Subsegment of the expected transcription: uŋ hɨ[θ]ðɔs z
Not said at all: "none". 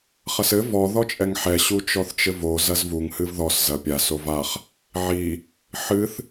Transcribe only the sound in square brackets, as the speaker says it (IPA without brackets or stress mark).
v